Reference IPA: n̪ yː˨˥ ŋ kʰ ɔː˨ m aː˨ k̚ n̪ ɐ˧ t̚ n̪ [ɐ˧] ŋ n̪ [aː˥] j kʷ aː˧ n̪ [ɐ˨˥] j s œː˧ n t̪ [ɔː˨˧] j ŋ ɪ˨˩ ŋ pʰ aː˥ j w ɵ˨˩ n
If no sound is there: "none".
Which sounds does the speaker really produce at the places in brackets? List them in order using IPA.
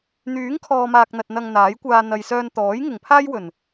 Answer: ɐ˧, aː˨˥, ɐ˨, ɔː˨˥

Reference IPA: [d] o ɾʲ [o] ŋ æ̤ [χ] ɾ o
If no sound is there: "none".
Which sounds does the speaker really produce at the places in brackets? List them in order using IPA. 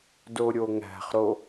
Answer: d, o, χ

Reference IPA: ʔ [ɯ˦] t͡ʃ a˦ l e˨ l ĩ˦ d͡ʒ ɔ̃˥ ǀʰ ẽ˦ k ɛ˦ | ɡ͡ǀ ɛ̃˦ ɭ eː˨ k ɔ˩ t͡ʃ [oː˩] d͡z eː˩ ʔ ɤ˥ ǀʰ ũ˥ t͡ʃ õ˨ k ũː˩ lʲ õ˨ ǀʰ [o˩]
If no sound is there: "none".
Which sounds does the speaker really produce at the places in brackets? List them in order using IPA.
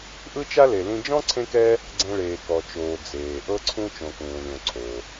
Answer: ɯ˦, oː˩, o˩

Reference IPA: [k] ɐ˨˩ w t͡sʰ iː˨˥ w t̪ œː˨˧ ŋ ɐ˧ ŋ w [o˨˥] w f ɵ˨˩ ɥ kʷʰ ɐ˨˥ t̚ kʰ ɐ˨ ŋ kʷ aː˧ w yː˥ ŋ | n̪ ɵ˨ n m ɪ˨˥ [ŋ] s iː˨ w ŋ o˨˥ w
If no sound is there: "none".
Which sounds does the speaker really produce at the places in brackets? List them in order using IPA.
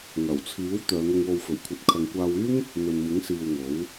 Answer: ŋ, o˧, ŋ

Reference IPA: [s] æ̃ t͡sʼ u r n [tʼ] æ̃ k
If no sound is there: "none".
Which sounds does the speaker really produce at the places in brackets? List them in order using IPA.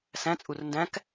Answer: s, d

